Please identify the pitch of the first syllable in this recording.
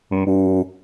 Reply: high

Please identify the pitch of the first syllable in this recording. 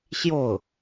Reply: falling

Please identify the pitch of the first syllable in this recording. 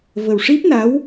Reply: low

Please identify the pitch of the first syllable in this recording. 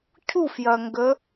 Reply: falling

